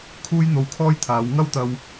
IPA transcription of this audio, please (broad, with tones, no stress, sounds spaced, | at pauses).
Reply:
kʰ uː˥ j n̪ o˧ w kʰ ɔː˥ j t̪ʰ aː˨˧ w ŋ ɐ˥ w t̪ ɐ˧ w